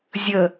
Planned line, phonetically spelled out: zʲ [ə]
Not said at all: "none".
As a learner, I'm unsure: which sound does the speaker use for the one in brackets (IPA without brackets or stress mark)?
ə